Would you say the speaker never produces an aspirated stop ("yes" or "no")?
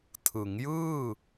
no